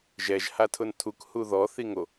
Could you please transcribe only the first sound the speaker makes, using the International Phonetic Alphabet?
ʒ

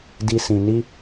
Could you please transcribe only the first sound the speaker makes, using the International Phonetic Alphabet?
d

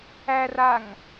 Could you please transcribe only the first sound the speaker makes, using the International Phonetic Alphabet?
æ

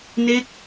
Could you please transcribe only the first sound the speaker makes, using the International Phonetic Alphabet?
n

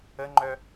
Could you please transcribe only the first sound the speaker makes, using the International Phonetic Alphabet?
ə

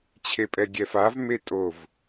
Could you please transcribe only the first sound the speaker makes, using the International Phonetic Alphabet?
t͡ɕʰ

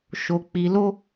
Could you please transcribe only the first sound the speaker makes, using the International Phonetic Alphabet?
ʃ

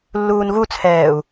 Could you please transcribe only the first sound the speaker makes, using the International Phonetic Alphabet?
lː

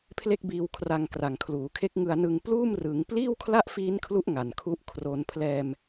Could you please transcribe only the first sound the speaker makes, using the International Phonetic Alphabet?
pʰ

